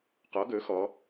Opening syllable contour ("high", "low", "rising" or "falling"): rising